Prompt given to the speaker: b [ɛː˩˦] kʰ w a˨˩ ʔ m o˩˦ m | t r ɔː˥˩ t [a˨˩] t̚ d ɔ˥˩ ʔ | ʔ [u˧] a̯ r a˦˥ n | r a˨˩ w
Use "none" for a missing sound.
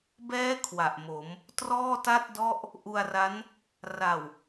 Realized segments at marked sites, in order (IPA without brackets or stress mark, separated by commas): ɛː˦˥, a˥˩, u˧